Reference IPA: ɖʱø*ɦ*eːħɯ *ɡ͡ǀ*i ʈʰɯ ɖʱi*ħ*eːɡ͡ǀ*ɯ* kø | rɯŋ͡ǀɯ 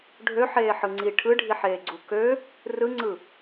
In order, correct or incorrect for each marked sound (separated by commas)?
incorrect, incorrect, correct, incorrect